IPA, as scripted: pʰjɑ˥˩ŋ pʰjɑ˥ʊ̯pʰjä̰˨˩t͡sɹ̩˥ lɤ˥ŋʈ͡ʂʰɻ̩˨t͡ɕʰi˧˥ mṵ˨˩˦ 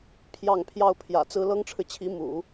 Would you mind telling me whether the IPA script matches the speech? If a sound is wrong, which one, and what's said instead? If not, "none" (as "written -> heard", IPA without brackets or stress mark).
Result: none